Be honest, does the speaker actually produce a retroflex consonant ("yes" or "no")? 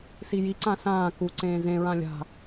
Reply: no